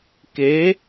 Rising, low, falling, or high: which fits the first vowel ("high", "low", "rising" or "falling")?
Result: rising